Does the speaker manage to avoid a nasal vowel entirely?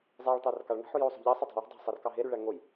yes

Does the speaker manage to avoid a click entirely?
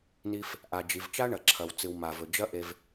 no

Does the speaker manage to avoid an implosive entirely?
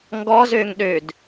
no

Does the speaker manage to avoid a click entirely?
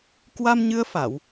yes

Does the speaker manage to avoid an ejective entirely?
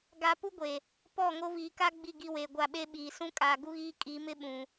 no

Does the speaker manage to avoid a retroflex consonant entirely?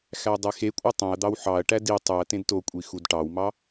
no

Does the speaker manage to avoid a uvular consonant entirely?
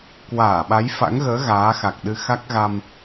yes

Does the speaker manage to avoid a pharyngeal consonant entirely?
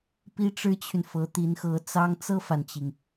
yes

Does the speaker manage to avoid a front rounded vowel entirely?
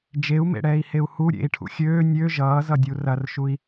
no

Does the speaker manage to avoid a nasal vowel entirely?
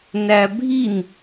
yes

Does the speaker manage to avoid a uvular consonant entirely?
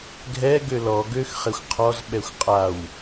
no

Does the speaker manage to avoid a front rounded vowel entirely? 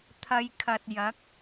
yes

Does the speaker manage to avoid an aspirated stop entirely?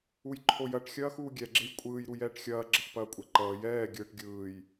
no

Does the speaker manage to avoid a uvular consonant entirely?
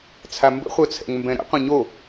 no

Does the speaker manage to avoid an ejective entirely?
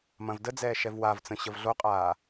no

